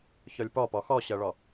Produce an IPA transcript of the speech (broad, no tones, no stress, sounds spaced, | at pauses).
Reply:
ç ɔ lʲ p ɔ p ɔ x ɔ ɕ ɜ ɭ ɔ